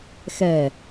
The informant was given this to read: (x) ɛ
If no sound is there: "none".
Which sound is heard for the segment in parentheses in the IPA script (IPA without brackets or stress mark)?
x